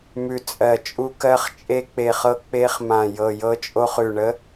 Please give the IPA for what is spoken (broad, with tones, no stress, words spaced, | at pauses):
mʉ˧˩ t͡sʼɜ˧˩t͡ʃʼu˦˥kɜ˦˥χ t͡ʃʼe˦˥ k͡pe˧˩χɤ˦˥ k͡pe˦˥χmã˧˩ jɤ˧˩jɤ˦˥t͡ʃʼo˦˥χ ʉ˧˩ɳə˦˥